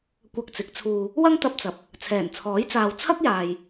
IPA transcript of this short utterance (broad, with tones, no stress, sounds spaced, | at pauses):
kʷ ɐ˧ k̚ t͡s ɪ˨˥ k̚ t͡sʰ uː˧ | w ɐ˥ ŋ t̪ ɐ˧ p̚ t͡s ɐ˨˥ p̚ | t͡sʰ ɛː˨˩ n t͡sʰ ɔː˨˥ j t͡s aː˨ w t͡sʰ ɐ˥ k̚ j aː˨ j